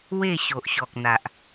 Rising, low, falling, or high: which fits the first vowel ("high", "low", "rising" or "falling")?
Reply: falling